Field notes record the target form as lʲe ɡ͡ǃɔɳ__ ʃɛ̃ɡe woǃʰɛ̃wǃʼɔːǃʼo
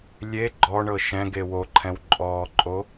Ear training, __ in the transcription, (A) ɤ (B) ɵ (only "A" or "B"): A